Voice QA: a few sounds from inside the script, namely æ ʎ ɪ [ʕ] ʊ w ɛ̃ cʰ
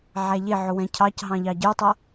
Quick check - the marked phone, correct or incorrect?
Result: correct